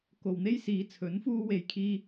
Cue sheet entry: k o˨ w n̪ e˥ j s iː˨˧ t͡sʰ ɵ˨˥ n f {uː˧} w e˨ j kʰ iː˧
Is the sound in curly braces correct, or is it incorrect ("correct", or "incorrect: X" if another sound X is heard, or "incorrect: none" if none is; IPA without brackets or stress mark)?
correct